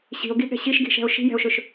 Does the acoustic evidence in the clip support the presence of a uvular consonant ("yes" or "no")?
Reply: no